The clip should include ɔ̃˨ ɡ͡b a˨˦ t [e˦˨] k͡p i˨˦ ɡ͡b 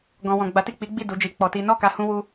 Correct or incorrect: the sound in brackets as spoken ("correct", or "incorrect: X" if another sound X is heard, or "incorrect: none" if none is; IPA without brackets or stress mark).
incorrect: i˦˨